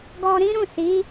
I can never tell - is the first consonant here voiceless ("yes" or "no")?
no